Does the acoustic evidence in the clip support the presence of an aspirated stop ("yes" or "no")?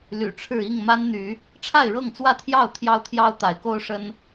yes